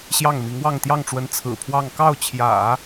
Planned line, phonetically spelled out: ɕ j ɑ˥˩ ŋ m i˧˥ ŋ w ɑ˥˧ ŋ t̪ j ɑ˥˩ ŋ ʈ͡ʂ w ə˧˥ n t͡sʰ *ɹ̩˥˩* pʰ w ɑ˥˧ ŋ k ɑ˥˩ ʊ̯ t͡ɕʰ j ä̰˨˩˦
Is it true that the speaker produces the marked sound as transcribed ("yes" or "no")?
no